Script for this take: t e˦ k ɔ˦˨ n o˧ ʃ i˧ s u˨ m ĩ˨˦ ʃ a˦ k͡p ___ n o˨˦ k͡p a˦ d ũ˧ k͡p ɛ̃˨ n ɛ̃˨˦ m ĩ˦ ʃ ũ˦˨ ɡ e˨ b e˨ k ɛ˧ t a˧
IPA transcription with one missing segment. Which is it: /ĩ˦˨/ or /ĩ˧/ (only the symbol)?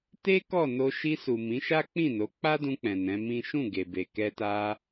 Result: ĩ˦˨